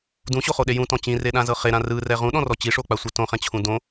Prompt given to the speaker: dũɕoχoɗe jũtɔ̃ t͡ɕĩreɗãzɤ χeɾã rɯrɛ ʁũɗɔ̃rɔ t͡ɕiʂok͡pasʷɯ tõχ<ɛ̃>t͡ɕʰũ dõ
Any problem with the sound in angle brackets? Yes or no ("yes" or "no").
no